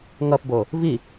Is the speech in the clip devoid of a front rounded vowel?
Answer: yes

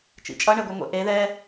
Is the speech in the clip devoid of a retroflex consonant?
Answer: no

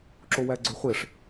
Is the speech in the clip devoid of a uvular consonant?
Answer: no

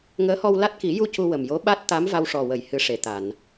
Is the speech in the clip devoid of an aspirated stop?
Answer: yes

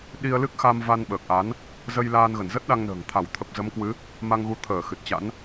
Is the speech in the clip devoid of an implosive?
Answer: no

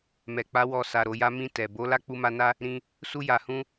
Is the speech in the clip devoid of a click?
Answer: yes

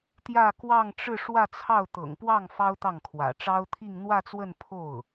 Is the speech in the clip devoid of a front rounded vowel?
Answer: yes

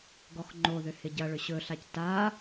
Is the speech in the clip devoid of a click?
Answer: no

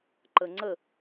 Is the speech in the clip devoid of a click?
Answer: no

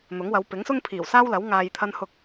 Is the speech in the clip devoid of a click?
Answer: yes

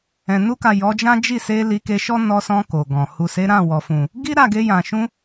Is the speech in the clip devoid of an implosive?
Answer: yes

